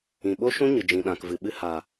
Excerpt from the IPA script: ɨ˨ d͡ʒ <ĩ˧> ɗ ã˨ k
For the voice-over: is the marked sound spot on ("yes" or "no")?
no